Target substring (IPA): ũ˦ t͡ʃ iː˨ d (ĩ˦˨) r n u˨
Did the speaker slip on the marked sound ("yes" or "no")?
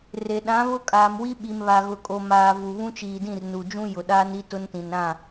no